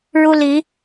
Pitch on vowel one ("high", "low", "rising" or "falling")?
high